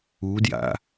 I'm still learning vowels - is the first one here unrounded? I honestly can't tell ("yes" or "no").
no